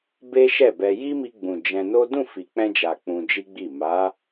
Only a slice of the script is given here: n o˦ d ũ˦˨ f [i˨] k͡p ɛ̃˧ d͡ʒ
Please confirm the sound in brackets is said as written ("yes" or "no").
yes